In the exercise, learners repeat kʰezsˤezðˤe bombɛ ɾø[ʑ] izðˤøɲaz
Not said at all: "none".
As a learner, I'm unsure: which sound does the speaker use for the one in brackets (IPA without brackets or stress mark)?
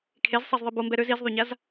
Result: z